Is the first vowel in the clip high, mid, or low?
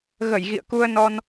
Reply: mid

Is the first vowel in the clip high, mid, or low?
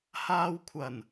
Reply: low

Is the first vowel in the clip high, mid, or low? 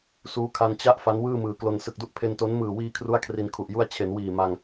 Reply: high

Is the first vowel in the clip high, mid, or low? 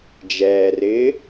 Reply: mid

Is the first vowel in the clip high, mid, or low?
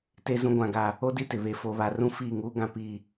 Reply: mid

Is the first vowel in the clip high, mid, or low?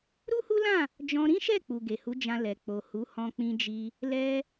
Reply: high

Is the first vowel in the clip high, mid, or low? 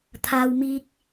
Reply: low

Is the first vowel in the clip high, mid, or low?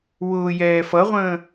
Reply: high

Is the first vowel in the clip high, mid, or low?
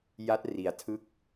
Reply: low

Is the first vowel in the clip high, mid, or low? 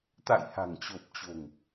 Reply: low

